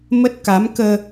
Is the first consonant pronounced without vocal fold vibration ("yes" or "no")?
no